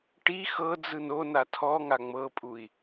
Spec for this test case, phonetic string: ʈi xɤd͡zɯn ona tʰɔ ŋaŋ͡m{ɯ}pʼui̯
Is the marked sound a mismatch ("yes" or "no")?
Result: yes